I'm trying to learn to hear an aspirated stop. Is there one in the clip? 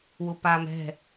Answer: no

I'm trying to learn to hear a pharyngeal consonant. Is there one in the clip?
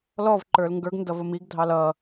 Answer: no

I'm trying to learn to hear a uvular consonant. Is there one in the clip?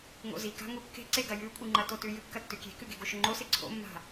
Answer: no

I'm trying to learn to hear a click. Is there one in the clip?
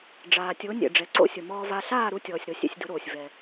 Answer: yes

